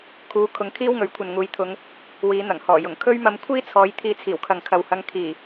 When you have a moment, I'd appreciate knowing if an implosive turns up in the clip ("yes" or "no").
no